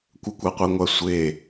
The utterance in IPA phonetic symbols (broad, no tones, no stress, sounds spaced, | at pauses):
kʷ ə kʷ a qʷ i ŋʷ a sʷ e